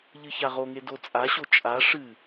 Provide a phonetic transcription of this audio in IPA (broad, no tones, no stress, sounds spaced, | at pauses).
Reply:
ʎ ɨ ç a ʁ o ŋ e d o t͡sʼ a ɕ o t͡ʃʼ a ʂ ɨ